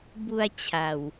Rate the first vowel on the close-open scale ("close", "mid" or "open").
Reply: close